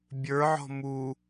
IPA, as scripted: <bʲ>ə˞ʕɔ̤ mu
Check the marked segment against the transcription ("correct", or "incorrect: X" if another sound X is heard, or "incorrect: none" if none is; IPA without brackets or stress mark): correct